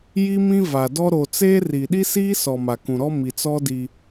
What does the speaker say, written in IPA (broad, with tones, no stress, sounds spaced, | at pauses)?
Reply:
j i˦ m ĩ˦ v a˨ d ɔ˦ ɾ o˨ t͡s eː˦ r i˨ ɗ i˦ s iː˦ s ɔ˨ m a˨ k ũ˨ ɾ ɔ˦ m i˨ t͡s ɔ˦ d i˦